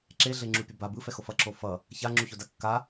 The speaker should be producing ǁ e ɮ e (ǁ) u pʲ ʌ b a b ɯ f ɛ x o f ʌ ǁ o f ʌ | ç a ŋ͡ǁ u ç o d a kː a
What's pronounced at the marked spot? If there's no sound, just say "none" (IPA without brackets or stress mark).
ŋ͡ǁ